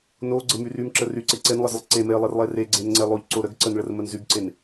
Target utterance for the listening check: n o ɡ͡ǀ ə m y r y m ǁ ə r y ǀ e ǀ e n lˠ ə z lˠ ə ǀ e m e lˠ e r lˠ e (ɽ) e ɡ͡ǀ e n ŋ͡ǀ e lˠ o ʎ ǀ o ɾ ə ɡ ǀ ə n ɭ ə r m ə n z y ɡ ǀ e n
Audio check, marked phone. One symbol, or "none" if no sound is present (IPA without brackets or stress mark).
r